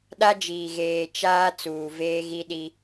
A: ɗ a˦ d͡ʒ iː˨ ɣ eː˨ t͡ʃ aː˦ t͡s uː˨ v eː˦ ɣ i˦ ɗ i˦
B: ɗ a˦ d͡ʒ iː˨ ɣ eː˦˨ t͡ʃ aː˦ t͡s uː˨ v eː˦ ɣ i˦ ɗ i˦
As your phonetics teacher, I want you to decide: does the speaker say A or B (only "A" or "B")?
A